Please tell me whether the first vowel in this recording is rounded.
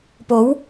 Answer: yes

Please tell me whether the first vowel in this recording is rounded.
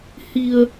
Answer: no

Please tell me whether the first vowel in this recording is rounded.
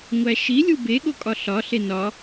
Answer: no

